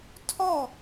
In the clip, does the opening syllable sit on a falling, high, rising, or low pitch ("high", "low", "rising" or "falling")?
falling